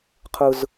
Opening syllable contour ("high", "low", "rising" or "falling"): high